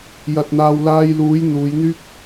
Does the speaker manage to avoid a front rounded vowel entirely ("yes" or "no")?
no